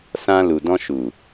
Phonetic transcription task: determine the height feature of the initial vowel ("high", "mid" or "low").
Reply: low